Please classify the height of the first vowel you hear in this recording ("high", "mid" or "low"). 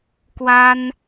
low